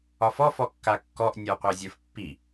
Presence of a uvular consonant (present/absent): present